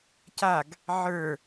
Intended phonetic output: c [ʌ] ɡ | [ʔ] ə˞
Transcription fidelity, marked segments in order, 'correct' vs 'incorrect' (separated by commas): incorrect, incorrect